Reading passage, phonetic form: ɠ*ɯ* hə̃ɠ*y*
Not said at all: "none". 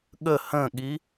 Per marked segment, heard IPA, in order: ə, i

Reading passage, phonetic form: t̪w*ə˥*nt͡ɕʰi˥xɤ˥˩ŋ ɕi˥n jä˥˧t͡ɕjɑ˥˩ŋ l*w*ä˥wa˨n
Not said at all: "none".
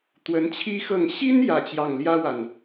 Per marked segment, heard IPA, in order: ə˧˥, j

